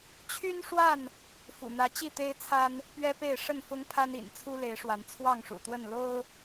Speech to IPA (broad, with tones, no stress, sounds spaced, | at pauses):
t͡ɕʰ y˦ n ʂ w a˥˨ n | f ṵ˨˩ n̪ ä˨˦ t͡ɕ i˥˨ t̪ e˦ ɪ̯ t͡sʰ a˦ n | p ɥ ɛ˦ p e˥˨ ɪ̯ ʂ ə˥˨ n f ʊ˦ ŋ pʰ a˦ n ḭ˨˩ n t͡sʰ u˦ l e˨˦ ɪ̯ ʂ w a˨˦ n t͡sʰ w ɑ˥˨ ŋ ʂ ṵ˨˩ t̪ w ə˥˨ n l o˦ ʊ̯